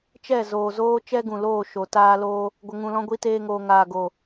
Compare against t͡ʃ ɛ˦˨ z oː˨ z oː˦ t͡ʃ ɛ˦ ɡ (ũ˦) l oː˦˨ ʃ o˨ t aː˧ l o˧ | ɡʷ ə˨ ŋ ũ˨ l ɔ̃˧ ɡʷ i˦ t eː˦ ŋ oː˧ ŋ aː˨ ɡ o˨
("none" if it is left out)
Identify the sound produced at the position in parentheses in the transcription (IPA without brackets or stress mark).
ũ˨